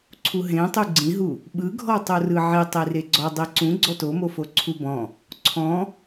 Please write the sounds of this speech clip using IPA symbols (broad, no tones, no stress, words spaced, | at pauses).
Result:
ǀʰuɦẽtˤu ɡ͡ǀĩɦu | ɓɯɡʱɔtˤo rɯʕi tˤireɡ͡ǀɔdˤi ǀũɡ͡ǀɔ tomofo ǀʰubɔ̃ | ǀʰɔ̃